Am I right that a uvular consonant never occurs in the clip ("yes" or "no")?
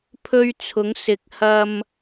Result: yes